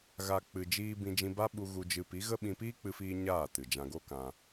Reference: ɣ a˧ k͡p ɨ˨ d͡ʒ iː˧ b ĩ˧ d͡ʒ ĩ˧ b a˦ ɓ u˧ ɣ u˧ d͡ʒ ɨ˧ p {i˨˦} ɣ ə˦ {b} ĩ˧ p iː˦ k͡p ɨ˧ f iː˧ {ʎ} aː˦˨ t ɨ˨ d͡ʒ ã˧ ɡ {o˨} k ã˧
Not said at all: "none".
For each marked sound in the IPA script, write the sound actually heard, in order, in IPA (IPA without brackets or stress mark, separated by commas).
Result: i˨˦, ɓ, ɲ, o˦